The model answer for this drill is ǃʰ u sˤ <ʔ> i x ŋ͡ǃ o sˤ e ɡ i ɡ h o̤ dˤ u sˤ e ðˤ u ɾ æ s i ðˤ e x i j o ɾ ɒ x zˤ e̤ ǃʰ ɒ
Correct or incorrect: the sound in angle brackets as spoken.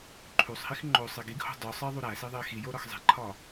incorrect: h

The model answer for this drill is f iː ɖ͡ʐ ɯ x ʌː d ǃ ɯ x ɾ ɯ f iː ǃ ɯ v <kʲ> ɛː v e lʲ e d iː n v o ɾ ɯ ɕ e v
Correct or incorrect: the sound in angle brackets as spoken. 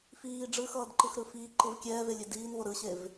correct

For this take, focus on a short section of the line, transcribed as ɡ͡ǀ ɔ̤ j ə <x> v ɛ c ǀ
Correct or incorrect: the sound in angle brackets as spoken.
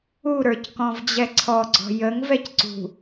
incorrect: ŋ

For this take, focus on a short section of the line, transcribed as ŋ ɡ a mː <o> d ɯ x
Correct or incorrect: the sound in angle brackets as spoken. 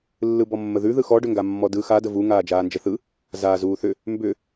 incorrect: ɔ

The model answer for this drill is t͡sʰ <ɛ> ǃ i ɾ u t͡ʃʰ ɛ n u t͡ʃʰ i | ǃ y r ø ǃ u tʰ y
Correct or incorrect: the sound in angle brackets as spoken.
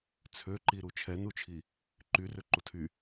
incorrect: ø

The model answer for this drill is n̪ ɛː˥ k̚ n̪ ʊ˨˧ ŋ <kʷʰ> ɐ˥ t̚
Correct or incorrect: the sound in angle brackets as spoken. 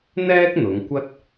incorrect: kʷ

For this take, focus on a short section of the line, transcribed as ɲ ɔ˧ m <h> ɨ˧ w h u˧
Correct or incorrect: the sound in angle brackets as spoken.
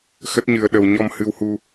correct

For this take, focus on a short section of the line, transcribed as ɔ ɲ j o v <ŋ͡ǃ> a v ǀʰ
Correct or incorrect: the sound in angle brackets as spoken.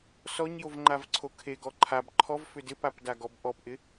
correct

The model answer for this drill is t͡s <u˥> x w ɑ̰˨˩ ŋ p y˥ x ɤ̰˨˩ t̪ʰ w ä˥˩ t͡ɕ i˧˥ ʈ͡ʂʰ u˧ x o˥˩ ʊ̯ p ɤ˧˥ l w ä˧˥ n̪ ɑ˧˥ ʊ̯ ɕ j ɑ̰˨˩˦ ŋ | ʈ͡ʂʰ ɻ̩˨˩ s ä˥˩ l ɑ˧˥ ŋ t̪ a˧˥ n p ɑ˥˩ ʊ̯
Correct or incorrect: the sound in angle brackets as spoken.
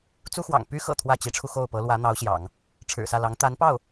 correct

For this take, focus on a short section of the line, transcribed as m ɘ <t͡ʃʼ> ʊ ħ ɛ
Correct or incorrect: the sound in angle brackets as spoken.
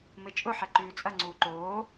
correct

